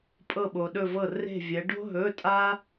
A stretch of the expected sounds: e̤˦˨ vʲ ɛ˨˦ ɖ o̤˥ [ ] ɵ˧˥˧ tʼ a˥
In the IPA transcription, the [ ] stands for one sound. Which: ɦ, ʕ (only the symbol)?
ɦ